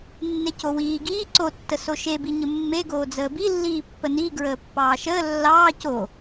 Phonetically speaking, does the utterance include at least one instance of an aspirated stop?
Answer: no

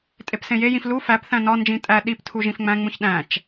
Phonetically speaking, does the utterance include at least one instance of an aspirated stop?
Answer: yes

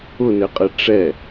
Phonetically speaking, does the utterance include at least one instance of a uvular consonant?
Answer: yes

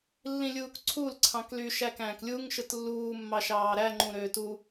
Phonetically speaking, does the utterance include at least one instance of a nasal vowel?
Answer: yes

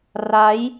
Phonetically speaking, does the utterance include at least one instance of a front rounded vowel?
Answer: no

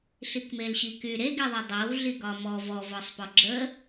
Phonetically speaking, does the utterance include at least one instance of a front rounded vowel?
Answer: yes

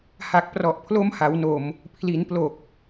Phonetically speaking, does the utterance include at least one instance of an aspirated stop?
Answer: yes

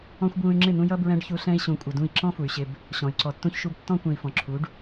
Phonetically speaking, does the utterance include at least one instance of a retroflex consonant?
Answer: yes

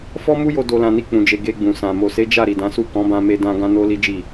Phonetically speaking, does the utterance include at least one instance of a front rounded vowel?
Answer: no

